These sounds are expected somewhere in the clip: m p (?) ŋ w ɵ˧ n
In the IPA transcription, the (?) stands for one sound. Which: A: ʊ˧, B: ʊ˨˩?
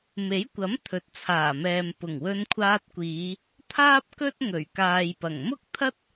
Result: B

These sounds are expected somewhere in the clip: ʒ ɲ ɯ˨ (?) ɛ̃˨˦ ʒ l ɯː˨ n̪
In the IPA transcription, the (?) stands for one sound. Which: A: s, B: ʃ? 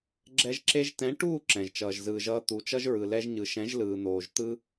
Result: B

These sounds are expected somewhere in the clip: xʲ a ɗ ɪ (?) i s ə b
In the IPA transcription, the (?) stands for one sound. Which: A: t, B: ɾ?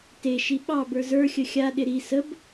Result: B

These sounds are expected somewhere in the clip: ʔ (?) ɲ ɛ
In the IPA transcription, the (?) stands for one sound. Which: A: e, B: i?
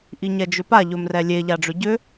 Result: B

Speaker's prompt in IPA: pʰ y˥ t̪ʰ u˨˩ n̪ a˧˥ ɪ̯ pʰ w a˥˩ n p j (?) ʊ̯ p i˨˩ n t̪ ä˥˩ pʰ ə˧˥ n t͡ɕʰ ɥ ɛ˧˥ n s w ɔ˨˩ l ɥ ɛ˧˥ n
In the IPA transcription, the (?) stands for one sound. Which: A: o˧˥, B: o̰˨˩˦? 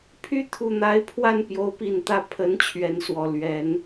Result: A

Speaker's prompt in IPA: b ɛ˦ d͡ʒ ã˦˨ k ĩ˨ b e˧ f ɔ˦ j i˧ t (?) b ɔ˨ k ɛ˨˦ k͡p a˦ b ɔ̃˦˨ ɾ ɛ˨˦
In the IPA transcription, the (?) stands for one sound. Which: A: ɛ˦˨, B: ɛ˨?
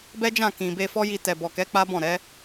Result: B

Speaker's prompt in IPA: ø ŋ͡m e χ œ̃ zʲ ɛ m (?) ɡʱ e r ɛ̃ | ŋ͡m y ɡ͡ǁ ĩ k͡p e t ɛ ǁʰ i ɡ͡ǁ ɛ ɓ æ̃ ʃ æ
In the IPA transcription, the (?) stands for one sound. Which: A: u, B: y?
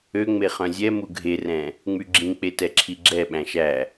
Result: A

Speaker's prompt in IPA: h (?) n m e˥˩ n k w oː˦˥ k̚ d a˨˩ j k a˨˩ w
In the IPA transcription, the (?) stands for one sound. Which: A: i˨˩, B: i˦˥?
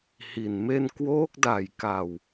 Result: A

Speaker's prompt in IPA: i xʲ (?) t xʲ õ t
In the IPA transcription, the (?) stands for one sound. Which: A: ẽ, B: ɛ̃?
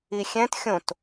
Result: B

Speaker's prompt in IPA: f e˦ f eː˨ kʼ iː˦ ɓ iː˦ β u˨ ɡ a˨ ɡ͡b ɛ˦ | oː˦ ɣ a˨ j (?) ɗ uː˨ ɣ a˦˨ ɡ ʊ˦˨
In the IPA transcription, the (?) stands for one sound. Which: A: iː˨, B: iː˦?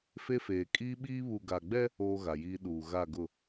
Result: B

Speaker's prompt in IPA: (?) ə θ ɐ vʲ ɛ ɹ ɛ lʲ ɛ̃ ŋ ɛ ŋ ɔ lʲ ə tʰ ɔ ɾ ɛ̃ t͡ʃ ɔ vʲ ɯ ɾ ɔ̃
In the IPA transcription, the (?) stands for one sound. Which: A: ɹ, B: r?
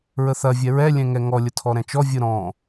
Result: A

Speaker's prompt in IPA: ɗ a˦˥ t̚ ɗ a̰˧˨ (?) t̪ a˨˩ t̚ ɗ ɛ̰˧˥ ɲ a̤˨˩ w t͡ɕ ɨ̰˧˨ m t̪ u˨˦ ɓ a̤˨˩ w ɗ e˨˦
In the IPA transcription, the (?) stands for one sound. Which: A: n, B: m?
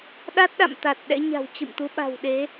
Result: B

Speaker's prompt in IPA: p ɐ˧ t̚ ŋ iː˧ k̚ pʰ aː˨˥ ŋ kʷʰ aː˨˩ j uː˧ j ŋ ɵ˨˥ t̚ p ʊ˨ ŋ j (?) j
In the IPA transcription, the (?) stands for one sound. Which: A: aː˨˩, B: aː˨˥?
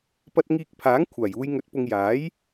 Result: B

